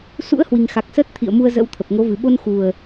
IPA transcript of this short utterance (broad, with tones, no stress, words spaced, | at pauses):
sṵ˧˥ə̯hwi˨˩ŋ xa˨˩k̚səː˦˥t̚t̪ʰḭ˧˨ə̯mu˧ə̯ zə̰˧˥wt̪ʰə˨˩p̚ ŋo˨˦vɨ˨˩ ɓo˧nxu˨˩ə̯